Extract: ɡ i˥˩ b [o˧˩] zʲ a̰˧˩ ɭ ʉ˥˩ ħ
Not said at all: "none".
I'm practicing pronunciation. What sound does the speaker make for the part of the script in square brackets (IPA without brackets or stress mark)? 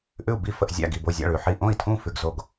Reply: o˧˩